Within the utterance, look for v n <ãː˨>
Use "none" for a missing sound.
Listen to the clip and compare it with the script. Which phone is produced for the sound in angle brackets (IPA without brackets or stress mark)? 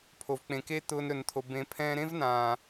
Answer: ãː˨